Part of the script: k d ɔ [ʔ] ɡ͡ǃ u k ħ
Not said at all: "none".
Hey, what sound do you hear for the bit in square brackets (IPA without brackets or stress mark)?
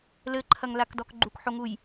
k